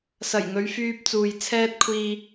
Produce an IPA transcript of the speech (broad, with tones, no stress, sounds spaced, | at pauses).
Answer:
s ɐ˨˩ j ŋ ɵ˨˧ ɥ f yː˧ p̚ t͡s uː˨ j t͡sʰ ɛː˥ t̚ kʷʰ iː˧